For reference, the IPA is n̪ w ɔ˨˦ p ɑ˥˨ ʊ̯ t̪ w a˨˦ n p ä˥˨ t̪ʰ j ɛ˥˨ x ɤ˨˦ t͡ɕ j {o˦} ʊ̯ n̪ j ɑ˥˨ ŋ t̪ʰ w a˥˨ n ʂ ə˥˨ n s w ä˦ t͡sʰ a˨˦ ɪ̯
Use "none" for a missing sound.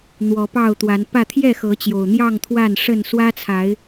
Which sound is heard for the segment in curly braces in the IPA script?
o˨˩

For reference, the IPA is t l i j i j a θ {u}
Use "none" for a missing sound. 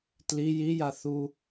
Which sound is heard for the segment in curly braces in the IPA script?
u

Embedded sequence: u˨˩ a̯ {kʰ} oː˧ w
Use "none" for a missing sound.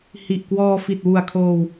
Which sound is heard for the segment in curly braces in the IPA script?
kʰ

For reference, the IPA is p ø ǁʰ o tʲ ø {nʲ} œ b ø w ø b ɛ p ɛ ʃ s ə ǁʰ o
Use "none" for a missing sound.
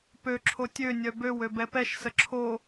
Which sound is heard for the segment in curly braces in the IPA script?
nʲ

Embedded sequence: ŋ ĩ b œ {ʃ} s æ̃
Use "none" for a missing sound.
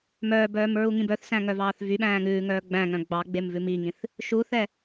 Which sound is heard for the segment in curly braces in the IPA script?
θ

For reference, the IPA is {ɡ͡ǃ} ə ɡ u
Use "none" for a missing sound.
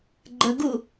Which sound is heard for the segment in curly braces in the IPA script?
ɡ͡ǃ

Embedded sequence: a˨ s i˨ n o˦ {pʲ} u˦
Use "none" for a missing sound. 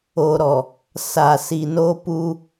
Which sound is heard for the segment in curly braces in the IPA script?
p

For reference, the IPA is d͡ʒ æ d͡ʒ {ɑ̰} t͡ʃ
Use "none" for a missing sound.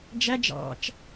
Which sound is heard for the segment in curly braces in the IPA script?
ɑ̰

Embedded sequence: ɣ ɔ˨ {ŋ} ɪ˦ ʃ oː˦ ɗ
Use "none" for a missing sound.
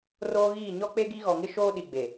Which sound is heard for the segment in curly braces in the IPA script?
ŋ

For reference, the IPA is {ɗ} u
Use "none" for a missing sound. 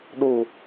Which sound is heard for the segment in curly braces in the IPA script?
ɗ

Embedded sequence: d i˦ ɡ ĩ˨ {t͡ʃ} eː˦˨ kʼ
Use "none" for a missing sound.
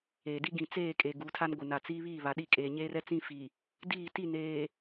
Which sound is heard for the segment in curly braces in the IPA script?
t͡s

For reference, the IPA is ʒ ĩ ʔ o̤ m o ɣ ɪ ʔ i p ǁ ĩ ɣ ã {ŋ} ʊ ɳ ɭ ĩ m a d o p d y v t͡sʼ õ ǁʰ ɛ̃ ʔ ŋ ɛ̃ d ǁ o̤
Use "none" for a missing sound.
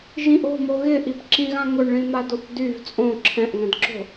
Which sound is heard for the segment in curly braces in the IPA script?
ŋ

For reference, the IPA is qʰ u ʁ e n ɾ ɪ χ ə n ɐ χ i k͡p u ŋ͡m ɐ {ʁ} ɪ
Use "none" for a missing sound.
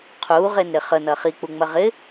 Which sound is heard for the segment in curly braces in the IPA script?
ʁ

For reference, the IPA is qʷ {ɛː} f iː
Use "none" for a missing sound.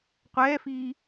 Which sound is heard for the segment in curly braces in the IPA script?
ɛː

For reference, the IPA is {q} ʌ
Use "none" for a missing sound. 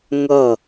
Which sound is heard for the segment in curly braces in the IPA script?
ŋ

